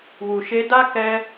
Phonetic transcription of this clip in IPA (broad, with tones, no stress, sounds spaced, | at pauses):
w u˨ ʃ e˧ d a˦ k ɛ˦